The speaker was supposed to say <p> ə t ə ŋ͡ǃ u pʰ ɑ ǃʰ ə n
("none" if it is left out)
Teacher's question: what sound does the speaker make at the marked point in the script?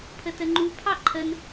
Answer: pʰ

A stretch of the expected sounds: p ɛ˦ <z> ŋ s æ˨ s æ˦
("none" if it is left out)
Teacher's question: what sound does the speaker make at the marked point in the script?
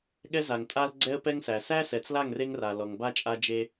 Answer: none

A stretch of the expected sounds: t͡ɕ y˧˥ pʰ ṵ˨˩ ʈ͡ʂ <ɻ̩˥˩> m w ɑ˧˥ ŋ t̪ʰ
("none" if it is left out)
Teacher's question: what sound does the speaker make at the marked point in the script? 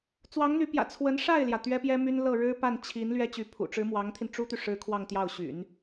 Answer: ɻ̩˧˥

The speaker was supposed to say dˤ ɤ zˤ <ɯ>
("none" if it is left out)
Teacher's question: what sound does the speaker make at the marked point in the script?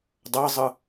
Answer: ɯ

